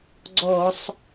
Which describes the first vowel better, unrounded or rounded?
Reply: rounded